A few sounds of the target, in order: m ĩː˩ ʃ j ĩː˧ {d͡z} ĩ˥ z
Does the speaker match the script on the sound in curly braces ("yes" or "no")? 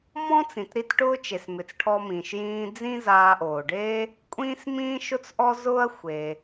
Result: yes